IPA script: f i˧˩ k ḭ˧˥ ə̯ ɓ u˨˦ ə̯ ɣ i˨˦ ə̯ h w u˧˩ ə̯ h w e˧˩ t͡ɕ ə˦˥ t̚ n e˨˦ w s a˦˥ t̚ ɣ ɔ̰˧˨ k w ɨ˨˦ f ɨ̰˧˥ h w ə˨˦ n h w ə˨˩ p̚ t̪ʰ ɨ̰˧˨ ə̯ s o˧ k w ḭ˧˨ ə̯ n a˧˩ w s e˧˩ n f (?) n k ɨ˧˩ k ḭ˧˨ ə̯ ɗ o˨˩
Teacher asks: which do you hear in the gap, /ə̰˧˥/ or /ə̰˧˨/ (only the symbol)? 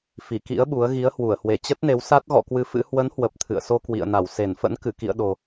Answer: ə̰˧˥